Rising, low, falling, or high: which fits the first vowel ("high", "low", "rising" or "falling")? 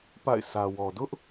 falling